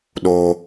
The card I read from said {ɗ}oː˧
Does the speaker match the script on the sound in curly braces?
yes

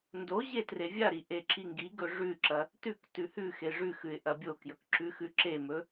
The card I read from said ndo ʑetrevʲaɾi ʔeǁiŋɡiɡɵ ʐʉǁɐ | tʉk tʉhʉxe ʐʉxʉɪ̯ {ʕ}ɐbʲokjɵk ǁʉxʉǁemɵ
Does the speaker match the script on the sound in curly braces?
no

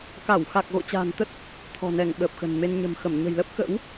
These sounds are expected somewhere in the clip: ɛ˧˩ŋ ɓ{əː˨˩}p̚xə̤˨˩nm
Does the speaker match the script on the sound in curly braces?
yes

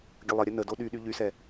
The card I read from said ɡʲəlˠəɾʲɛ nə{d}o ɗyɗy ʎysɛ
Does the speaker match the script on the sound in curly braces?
yes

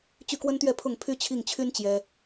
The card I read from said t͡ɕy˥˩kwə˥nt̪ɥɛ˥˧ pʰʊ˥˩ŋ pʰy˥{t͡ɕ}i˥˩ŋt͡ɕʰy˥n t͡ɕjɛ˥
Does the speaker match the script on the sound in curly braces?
no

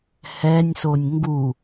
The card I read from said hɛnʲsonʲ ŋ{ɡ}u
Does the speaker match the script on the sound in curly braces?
yes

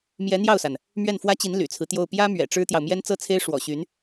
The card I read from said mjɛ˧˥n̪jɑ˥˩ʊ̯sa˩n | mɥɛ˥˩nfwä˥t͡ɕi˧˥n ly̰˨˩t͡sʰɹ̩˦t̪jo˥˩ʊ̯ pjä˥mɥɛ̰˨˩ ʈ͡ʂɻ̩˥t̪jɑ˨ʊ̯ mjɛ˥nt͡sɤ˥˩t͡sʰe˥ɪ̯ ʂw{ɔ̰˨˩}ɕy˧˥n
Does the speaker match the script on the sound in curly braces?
yes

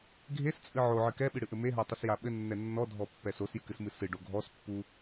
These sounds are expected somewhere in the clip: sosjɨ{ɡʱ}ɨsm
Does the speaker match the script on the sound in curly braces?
no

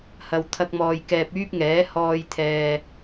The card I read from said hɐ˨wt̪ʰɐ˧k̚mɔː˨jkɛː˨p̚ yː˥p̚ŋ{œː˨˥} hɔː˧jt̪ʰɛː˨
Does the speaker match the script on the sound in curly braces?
no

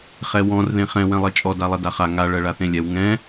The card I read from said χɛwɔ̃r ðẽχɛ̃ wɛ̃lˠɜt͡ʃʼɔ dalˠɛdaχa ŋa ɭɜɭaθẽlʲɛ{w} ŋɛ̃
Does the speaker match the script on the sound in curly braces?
yes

